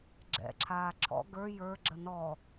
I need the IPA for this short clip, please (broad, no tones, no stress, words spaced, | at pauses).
ɡ͡ǁɛ̰ǁʰaː ǁʰɔ̰ ɡə˞ jə˞ɡ͡ǁə nɔ